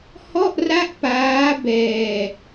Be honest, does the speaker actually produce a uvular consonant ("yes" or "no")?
no